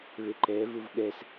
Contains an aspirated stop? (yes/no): no